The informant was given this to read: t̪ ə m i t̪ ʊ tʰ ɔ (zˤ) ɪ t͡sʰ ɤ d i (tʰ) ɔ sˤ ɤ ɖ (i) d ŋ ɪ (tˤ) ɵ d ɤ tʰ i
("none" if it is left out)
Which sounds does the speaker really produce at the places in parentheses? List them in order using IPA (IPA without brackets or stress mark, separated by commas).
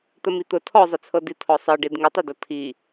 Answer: zˤ, tʰ, i, tˤ